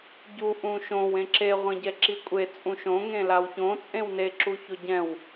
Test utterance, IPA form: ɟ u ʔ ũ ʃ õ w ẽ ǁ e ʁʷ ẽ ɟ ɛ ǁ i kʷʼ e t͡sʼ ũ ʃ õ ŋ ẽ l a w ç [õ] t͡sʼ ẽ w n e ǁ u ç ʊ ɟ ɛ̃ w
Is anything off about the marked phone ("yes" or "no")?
no